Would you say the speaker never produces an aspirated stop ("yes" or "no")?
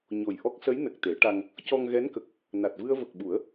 yes